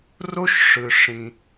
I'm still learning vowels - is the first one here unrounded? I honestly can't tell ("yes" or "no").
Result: no